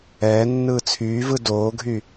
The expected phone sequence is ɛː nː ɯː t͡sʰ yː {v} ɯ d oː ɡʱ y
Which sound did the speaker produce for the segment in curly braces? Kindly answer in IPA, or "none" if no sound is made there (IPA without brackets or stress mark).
v